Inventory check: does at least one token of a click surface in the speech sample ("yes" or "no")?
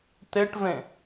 no